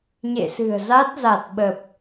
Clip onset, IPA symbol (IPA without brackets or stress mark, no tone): ɲ